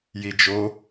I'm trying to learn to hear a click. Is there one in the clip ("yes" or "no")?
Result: no